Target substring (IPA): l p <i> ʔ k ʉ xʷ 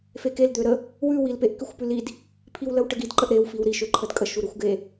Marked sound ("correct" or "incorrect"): incorrect